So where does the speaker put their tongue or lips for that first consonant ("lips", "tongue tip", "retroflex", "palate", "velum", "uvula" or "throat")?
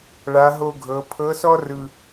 retroflex